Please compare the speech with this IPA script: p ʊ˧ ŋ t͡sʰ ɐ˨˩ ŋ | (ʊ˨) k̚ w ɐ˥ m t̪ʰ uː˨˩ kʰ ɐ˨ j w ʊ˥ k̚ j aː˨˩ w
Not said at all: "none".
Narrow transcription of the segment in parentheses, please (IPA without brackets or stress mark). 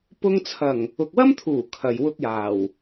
ʊ˨